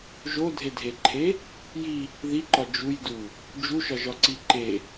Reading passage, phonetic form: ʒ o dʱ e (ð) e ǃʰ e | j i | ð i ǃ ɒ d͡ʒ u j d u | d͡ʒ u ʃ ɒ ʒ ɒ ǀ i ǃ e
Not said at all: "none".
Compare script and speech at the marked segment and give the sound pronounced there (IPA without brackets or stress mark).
dʱ